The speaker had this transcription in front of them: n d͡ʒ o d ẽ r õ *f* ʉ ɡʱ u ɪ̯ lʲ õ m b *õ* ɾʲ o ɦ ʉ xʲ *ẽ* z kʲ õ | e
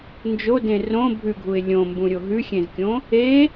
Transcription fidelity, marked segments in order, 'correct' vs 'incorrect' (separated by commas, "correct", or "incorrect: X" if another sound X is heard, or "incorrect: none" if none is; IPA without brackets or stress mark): incorrect: bʱ, incorrect: ũ, correct